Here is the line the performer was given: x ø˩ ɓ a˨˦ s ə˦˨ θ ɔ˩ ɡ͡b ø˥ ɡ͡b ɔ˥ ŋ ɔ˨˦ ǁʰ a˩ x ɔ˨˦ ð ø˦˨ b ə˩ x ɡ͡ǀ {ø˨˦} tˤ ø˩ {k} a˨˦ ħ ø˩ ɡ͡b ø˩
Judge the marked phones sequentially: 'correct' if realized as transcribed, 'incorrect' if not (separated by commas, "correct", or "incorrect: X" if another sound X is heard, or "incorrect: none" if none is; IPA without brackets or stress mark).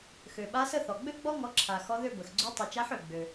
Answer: correct, incorrect: t͡ʃ